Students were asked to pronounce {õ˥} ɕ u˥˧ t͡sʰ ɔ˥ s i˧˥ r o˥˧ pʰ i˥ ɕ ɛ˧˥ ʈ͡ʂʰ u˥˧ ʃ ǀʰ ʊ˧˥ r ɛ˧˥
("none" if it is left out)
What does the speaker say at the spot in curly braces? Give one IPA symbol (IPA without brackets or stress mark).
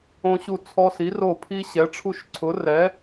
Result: õ˥